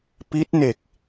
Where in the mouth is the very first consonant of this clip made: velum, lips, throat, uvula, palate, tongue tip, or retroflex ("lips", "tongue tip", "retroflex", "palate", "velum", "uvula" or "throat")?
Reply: lips